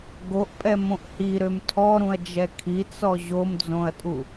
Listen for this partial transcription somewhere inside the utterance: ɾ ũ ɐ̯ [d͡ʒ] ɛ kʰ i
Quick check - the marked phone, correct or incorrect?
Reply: correct